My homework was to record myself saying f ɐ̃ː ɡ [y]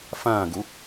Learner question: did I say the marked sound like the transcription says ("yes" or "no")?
no